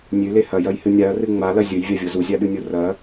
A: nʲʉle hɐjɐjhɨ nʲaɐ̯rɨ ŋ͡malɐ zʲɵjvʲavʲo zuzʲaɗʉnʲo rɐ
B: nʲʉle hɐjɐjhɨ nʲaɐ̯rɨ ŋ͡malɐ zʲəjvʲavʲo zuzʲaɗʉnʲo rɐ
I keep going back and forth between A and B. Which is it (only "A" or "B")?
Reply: A